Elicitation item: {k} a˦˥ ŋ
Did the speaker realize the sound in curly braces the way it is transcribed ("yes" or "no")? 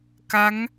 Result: yes